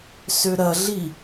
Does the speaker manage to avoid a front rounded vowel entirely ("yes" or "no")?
no